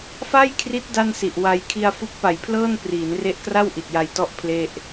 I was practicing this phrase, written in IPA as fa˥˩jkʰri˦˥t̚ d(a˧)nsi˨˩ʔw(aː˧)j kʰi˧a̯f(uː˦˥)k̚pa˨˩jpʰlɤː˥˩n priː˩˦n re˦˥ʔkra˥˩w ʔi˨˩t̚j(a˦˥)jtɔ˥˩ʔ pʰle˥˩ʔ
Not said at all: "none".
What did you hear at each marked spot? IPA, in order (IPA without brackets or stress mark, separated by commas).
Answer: a˥˩, a˧, u˦˥, a˧